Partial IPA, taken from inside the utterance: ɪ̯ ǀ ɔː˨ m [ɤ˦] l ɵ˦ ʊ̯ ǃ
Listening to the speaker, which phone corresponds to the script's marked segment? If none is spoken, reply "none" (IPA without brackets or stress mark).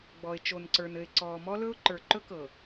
ɔ˦